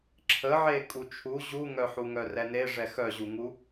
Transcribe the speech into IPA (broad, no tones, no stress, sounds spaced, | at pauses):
ǁʰ ə ʕ e kʼ u t͡ʃʰ u ʑ u ŋ œ ħ u ŋ œ r ɛ n e ʐ ɛ x œ ʑ u ŋ u